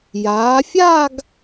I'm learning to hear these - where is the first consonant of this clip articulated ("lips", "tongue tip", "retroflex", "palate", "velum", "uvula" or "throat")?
palate